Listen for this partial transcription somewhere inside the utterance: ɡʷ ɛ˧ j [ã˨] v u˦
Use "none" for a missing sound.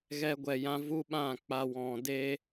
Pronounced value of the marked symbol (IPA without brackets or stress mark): ã˦